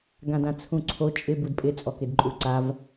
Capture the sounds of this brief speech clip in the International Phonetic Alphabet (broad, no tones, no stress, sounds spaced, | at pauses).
ɡ ã d ã t͡sʰ ũ ǀʰ o t͡ʃʼ ɪ b u d pʼ ɪ t͡sʼ ɔ k ɪ d ǃʼ u ǀ a v